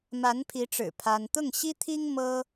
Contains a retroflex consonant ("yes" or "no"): yes